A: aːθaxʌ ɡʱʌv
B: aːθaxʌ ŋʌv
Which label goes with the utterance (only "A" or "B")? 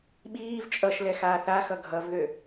A